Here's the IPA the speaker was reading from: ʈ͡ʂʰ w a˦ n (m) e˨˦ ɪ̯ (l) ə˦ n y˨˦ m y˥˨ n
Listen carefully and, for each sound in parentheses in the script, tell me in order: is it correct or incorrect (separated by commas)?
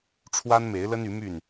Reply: correct, correct